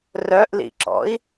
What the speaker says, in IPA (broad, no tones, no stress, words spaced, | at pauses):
rœʔlḭǁɔ̰i̯